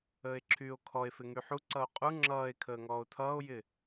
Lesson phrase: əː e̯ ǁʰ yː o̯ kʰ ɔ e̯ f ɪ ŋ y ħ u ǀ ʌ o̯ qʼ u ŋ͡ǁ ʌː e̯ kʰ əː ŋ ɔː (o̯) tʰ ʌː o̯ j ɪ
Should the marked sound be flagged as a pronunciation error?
no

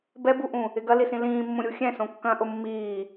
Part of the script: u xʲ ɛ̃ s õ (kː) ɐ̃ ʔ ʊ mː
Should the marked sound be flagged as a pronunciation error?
no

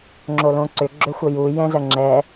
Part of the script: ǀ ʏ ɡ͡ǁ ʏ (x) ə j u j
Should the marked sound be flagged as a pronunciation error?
yes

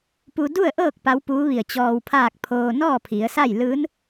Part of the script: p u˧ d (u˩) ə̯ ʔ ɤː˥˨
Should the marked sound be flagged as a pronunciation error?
yes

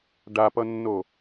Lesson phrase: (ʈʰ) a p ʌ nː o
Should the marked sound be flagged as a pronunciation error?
yes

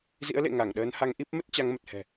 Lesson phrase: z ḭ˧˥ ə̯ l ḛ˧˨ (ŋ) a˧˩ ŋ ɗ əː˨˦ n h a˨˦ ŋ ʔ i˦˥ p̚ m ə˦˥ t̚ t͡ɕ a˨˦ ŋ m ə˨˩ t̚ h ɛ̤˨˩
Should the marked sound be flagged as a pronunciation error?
no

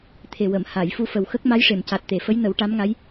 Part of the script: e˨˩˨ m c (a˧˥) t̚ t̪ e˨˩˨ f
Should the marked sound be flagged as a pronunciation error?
yes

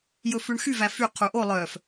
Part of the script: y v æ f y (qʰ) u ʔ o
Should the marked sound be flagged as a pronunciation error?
no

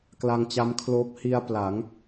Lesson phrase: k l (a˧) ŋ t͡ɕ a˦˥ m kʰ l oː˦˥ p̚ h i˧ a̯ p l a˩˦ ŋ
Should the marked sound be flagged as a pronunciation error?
no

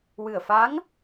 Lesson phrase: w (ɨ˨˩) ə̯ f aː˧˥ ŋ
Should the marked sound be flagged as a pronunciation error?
no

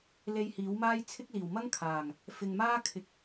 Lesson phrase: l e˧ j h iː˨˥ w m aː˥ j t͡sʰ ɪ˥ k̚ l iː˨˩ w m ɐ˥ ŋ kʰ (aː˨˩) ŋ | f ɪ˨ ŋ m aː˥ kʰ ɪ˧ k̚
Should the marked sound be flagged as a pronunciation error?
no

